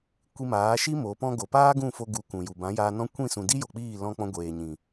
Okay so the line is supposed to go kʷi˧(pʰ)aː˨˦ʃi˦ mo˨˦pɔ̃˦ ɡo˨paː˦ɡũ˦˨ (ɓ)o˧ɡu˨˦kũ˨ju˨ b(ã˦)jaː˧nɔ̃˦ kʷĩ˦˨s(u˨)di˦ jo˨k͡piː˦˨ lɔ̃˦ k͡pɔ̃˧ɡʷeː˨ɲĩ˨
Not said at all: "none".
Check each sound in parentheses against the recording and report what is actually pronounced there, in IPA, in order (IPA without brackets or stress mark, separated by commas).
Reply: m, f, ã˨˦, ũ˨